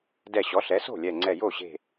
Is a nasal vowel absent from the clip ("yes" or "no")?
yes